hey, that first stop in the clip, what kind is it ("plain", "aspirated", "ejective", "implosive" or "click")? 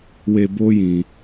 plain